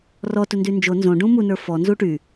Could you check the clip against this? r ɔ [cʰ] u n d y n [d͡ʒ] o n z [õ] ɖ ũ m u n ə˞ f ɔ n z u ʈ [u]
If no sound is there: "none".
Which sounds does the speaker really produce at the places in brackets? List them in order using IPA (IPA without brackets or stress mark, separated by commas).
t, d͡ʒ, õ, y